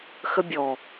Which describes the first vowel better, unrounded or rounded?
unrounded